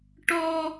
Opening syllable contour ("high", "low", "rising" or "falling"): high